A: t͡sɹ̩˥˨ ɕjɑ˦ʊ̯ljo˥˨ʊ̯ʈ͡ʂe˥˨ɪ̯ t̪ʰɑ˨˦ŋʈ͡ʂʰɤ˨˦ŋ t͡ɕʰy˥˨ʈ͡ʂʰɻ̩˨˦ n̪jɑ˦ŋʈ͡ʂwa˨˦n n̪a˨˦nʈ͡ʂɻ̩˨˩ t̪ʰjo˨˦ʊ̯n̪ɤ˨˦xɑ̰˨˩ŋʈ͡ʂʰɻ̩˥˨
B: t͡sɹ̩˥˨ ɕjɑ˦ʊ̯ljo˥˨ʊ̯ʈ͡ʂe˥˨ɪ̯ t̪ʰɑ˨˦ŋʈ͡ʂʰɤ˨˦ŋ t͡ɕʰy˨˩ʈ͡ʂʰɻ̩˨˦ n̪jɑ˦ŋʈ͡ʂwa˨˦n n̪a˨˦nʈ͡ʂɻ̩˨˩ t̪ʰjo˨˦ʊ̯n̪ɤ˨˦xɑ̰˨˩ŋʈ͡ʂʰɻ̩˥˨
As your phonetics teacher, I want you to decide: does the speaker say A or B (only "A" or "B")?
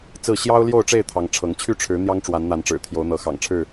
A